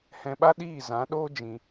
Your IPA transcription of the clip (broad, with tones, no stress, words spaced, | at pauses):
hɛ̃˧ɓa˦ɗiː˦˨ zã˨˦ɗoː˦ d͡ʒĩ˧